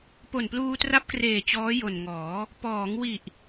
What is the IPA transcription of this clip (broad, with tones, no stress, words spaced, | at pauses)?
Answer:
po˨˩npluː˧tra˦˥p̚kreː˨˩ t͡ɕɔː˦˥jo˨˩nŋɔː˩˦ | pɔː˩˦ŋwi˨˩ʔ